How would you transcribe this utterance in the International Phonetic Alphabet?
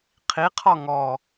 qʰiqʰɔ ŋɔ

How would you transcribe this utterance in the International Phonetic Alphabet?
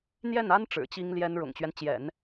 n̪jɛ˥˩na˥n ʈ͡ʂɻ̩˨˩t͡ɕi˥ŋljɛ˥n ɻʊ̰˨˩ŋt͡ɕɥɛ˦nt͡ɕjɛ̰˨˩˦n

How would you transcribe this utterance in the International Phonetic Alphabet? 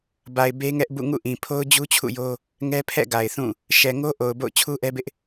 ba˨ɪ̯ be˦ŋɛ˦ʔbṵ˦˨ ŋṵ˦˨ʔĩ˨pʰo˦ʊ̯ d͡ʑu˦t͡ɕʰṵ˦˨jo˦ | ŋɛ˦pʰɛ̰˦˨ɡa˨ɪ̯ θũ˦˨ | ʃɛ˨ ŋo˦ʔo˨ʊ̯ bo̰˦˨ʊ̯t͡ɕʰu˦ʔɛ˦bɪ˦ʔ

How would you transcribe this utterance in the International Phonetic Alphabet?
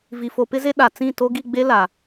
vi˨fo˨pɪ˦ze˦ ɗa˨ t͡sĩ˦˨to˦ ɡi˦˨ɡ͡be˦ la˨

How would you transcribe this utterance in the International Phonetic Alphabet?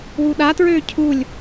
wuɗatɹøː cʰulʲ

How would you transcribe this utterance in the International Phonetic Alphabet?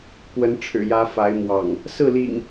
kwə˨˦nʈ͡ʂʰɻ̩˨˩jä˨˦ fa˨˦ɪ̯mwɑ̰˨˩ŋ | sɹ̩˥˨lḭ˨˩ŋ

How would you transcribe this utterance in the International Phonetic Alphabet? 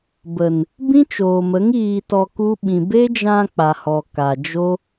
bə˨n | bĩ˦t͡ʃoː˨mə˨˦ŋ iː˧tɔ˧ku˦ ɓĩ˨be˦d͡ʒã˧ k͡pa˨hɔ˨ ka˨d͡ʒo˦

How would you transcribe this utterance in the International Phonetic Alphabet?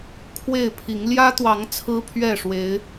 kʰwe˥˨ɪ̯pʰi˨˦ŋ ljä˦t̪wɑ˨˦ŋ t͡sʰɹ̩˦pʰɥɛ˥˨ʂwe˨˦ɪ̯

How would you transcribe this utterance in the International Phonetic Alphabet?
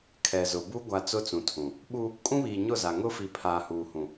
kʰɛ˨zʊ˨bu˦ ɡʷa˨ t͡sʊ˦t͡sũ˨ tʰũ˨ | ɓu˦ | kʼũ˦βiː˨ɲʊ˦˨za˨ ŋʊ˦fi˨ pʰaː˨huː˨hũ˨

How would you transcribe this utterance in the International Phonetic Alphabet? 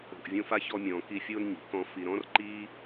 o̤˨ʔvʲõ˦fa˥çɔ˦ mʲɔ̃ː˨ki˦fʲoː˥n ɲi̤˩ kɔ̃˦ fi˨ɾɔ̃˥rǃiː˥

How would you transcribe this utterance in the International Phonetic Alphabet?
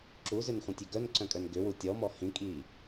ǁuzʏnχʷĩtʲʏ ɡœnǀœ̃kʼœn ɡʏwu tʲɔmɔ hĩkʼiː

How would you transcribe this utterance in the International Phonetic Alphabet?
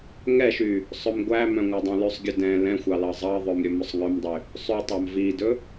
ŋɛʃy | sˤɵmɡʷæmœ̃ ŋʷædˤœ̃lʉsˤɡʲɵ dɛ̃ lɛ̃xʷɑ lɑzˤɑðˤœm ɾʲɵmɵsˤŋœmdˤy | sˤʉtˤɑm vidɵ

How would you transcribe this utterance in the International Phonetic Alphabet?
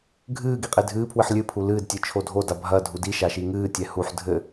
ɡʱɨː ɡiqʼedʱɨːpʰwɨħ lʲɨpʰu lɨːdtʲɨ t͡ʃʰodʱoda bʱɐ dʱudiʃa ʃiŋɨːtʲɛ huħ dʱɘ

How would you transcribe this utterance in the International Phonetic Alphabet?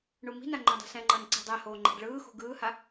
ɳumi̤na ŋ͡ǃõdˤe̤sɛ̃ŋ͡ǃʌːn ǀi̤dˤɛhoː ŋ͡ǃɛ̤ɖɭɯːxṳ ɡɯːha

